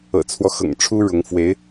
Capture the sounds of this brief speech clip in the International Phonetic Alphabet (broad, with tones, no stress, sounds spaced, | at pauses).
ɤ̰˨˩ t͡sʰ w ɔ˦ x ɤ̰˨˩ ŋ ʈ͡ʂʰ u˥ ɻ ʊ˧˥ ŋ f w e˧˥ ɪ̯